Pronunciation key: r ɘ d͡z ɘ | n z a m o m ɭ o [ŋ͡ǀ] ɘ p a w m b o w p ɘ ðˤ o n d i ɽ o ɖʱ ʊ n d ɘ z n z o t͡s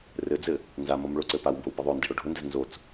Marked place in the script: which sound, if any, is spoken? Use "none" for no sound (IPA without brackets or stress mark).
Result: ǀ